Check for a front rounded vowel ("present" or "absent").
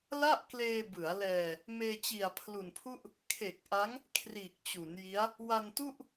absent